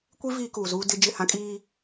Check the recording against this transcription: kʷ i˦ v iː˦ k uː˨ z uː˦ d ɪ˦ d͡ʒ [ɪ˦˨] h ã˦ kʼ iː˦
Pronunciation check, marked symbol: correct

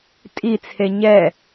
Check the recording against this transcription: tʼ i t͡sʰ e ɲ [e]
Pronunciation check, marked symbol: incorrect: ɛ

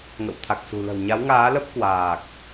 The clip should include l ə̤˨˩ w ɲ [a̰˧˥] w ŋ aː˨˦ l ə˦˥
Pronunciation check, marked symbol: incorrect: a˨˦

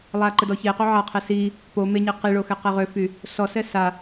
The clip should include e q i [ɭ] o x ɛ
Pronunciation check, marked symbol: correct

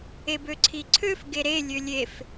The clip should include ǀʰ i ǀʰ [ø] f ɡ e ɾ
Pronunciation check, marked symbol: correct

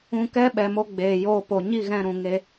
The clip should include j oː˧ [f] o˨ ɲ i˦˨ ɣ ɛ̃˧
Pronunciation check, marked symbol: incorrect: p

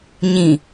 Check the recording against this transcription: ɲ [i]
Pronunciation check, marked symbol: incorrect: ĩ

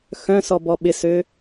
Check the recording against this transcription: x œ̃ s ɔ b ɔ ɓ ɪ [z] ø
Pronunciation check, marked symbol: incorrect: s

